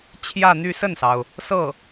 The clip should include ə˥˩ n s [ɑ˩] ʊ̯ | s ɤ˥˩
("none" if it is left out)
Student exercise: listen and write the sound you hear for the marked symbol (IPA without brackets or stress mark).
ɑ˩